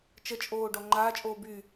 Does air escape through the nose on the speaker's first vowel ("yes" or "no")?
no